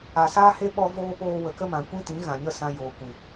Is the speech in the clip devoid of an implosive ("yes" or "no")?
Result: no